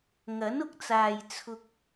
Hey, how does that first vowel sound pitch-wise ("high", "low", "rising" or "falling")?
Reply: rising